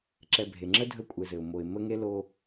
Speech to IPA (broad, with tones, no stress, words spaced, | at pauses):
ǁɛ˨bʱe˩ŋ͡ǁə˥ dʱə˦kʷʼɘ˨zɘ˩ʊ̯ mo˨ɪ̯ mə˥ŋe˥ lo˦